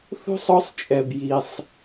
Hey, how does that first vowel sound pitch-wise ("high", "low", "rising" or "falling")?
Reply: high